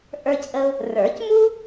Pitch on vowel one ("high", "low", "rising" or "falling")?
high